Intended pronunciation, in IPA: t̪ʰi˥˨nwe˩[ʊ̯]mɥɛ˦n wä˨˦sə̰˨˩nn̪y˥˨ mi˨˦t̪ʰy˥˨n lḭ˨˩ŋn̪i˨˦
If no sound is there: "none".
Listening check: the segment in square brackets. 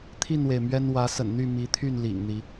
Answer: ɪ̯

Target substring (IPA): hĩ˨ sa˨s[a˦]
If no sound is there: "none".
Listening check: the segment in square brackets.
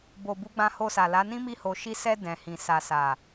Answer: a˨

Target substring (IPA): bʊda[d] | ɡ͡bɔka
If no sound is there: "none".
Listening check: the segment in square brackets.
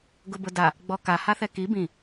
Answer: none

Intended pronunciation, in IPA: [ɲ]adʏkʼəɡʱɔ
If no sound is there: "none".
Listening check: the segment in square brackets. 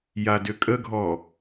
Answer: j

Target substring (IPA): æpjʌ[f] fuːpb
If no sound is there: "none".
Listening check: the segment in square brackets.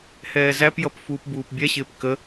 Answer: p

